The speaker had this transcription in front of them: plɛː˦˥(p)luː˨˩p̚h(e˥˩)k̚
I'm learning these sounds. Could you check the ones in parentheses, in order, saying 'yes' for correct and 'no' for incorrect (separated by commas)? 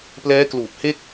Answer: no, yes